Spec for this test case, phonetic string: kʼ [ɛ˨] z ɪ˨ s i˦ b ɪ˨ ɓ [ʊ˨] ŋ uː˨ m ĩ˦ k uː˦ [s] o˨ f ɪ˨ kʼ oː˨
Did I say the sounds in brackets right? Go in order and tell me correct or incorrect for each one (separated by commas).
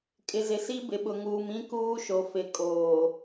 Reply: incorrect, correct, incorrect